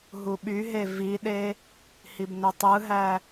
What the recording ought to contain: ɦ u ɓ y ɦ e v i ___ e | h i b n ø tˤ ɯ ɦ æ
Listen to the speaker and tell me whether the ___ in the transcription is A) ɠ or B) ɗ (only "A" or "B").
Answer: B